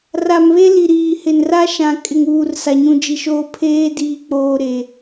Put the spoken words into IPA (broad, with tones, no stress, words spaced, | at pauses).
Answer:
ra˨mβe˦ li˨ɾiː˨ hɪ˨nra˦ʃã˨ kʼɪ˨ŋuː˨r sa˨ɲũ˨d͡ʒi˨ʃoː˦ pʰeː˦diː˨k͡poː˨ ɾe˨